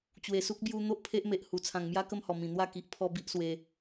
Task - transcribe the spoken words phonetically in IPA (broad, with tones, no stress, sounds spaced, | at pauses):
t͡ɕ w e˨˩ s u˦ k̚ b j u˧ n̪ o˦ ʔ pʰ e˦ ʔ m e˨ ʔ h u˨˩ t͡sʰ ã˨˩ ŋ m j a˦ k ə˥˧ m h ɔ˨˩ m ĩ˨˩ n̪ w a˥˧ k i˨ ʔ pʰ ɔ˦ b i˦ ʔ s w e˧